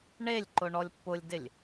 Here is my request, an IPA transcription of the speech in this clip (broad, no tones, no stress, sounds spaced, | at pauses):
ɳ e lʲ ǃ ʊ ɳ ɔ lʲ pː ʊ lʲ d ɪ lʲ